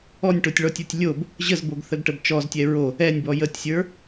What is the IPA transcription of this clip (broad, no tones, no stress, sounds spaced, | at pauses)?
ɔ nʲ ʈ o tʲ ɭ ɔ tʲ ə˞ tʲ lʲ o b | ʑ ə z b o ɡ θ ə ɡ ʈ ə b t͡ʃ ɔ z tʲ ɛ ɹ o | ɛ nʲ b ɔ j ə tʲ sʲ ə˞